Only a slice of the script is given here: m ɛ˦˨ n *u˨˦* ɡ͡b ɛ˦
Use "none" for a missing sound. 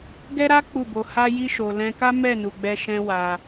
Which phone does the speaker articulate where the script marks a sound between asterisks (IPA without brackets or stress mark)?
u˧